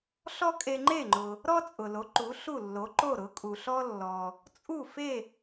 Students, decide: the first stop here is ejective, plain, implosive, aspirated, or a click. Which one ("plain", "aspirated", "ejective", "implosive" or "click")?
ejective